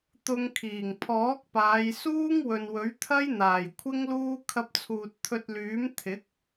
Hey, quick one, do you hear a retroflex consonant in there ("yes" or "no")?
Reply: no